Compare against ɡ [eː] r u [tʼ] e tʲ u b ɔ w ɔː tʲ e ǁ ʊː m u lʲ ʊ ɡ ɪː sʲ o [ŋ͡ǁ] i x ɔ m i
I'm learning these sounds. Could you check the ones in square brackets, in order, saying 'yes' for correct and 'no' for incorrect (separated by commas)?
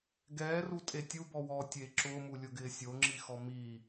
no, yes, yes